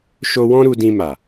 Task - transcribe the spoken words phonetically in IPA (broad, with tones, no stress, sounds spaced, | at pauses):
ʃ o˧ w ɔ̃˦ ɾ u˧ d ĩ˧ m a˨